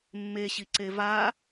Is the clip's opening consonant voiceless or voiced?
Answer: voiced